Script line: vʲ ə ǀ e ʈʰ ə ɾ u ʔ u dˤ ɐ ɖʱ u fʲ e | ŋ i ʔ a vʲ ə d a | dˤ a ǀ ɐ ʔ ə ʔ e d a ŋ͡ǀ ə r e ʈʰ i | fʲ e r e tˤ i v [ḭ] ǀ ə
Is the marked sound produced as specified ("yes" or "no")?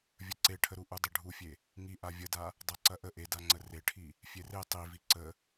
no